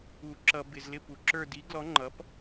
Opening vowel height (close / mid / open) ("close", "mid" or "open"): close